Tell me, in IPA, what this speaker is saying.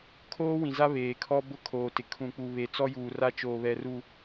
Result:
kʰoː˦wĩ˨za˦ βeː˨kʰɔ˦bʊ˦ kʰoː˨ tɪ˨ kʰũ˨k͡pu˨ βe˨t͡sɔ˦juː˨ra˦ t͡ʃoː˨βɛ˨ru˨

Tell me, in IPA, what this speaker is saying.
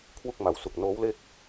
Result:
kʰwu˥˩k̚ma˨˩wsu˨˩k̚ noː˦˥wle˥˩k̚

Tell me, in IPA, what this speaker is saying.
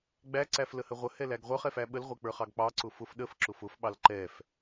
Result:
ɡ͡bæǀæfləhə ʁʷəhɛlæɡ ʁʷə˞χɛfæ ɓəlʁʷɛk͡pə˞χɑɡ k͡pɑǀʊ fʊf ɗəfǁʊf ʊfɓɑl ǃɛf

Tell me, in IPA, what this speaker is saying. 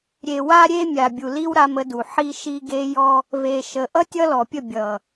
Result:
ɾʲe˨ wa˦ɾʲe˦ mʲa˨bʲu˨li˦w ɾa˦mə˦du˨ ħi˦ʃi˦ɡe˦jɔ˦ | ve˨ʃə˨ ʔʌ˦ tʲʌ˦lɔ˨pʲə˦˨ bʲʌ˨

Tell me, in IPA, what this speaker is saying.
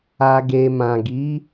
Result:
a˨ɡe˨mã˨ɡi˨˦

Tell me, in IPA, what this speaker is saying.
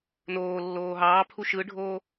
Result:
noːlːoː ɦɑːpʰu ʃɯɖʱoː

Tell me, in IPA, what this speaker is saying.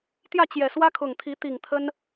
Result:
t̪jä˥˨t͡ɕjɛ˨˩swä˦kʰʊ˨˩ŋ t̪ʰi˨˦t̪i˨˩ŋ t̪ʰə˦n

